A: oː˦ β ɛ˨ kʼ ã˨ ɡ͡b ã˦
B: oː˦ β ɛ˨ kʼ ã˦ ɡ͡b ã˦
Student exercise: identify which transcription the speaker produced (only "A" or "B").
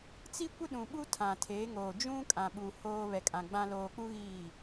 A